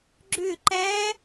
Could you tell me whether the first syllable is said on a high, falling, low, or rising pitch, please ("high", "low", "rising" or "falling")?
falling